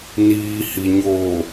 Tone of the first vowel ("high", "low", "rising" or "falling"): low